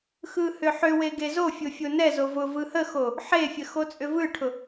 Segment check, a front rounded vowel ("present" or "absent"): present